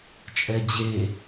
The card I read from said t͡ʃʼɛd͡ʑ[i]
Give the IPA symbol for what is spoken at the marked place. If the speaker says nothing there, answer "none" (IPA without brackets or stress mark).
e